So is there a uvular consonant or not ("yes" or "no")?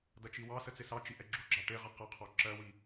yes